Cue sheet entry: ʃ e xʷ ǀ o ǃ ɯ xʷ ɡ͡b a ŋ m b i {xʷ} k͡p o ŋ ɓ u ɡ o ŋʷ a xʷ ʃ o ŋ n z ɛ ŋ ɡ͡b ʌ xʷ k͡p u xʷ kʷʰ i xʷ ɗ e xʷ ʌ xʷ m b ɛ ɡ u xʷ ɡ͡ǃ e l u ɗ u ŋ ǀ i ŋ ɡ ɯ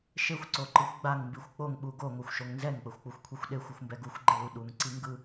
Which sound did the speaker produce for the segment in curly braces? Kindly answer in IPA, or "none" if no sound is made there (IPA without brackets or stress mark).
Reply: xʷ